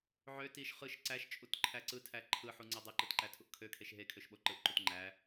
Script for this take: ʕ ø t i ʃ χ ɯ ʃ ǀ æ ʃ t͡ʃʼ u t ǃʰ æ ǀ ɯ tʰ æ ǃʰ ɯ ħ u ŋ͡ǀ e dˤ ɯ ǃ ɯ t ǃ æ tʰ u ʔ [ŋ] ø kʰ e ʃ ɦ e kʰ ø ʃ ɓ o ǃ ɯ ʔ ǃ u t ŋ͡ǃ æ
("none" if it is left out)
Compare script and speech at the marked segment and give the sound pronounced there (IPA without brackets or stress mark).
kʰ